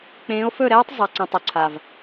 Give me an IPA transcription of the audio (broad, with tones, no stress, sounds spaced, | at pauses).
k͡p ẽː˨˦ o̯ f ɵ˦˨ ɾ ɛː˦ tˤ zˤ a˨ ǀ ɛ̃˨ tˤ ɵ˨ ǀʰ a˨ v